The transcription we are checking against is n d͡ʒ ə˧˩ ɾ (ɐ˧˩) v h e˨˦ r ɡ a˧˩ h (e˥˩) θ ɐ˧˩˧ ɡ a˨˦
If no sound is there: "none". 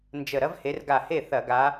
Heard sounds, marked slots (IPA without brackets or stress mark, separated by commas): ɐ˥, e˥˩